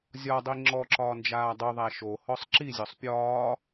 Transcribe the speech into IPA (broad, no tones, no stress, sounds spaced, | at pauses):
zʲ ɒ dˤ i ŋ͡ǁ ɔ ǁ ɒː n d͡ʒ aː dˤ u ðˤ æ ʃ o h ɔ sˤ ǁ i zʲ ɔ sˤ pʲ ɒː